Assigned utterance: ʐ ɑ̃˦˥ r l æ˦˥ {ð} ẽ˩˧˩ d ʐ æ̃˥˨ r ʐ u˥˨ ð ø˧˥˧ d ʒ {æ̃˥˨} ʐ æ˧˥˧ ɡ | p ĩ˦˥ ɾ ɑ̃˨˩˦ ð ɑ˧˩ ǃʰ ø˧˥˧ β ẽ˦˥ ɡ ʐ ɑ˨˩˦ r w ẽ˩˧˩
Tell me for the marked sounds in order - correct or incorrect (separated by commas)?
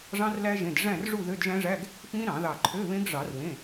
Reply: incorrect, incorrect